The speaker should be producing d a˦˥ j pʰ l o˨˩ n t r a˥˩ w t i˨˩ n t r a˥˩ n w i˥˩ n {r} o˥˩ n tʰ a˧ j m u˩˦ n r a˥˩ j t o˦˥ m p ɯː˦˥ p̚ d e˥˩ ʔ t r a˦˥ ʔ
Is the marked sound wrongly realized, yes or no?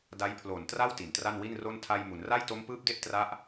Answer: no